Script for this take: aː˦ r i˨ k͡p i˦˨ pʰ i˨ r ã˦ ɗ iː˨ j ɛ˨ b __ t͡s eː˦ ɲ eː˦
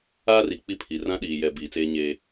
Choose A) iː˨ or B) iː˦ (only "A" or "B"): A